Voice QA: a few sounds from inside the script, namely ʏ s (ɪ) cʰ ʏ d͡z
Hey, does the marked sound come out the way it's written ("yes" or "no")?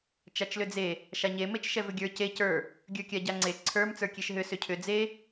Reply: no